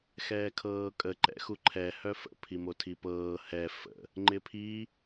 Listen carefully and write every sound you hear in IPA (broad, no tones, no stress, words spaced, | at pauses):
xɛːkʰɤːkʼə ǃɛ̰xuǃʰɛ hœfə̰ pʰimotʰipɤː hɛ fə̰ | ŋ͡ǃɪpʰi